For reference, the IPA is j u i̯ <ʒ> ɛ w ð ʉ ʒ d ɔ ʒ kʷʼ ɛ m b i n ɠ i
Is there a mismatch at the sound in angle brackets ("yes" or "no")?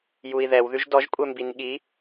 yes